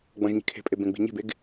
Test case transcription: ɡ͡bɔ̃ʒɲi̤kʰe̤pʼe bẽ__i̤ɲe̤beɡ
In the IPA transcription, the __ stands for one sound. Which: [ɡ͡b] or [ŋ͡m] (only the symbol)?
ɡ͡b